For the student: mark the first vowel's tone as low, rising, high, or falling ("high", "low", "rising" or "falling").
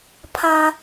high